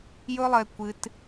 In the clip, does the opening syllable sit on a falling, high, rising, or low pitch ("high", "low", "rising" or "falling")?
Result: high